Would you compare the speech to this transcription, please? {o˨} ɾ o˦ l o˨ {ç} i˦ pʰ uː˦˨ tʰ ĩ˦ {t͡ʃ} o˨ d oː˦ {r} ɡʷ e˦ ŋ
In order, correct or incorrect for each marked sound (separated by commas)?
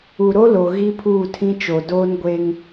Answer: incorrect, incorrect, correct, incorrect